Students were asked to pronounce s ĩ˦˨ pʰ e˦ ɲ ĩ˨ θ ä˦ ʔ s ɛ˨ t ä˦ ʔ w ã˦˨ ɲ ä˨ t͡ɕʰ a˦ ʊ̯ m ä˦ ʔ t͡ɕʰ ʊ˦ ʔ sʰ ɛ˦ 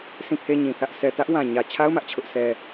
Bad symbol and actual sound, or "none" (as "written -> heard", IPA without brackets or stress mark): ã˦˨ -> ã˨